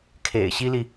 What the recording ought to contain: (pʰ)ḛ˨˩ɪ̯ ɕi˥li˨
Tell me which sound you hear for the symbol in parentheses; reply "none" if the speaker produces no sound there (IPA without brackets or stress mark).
kʰ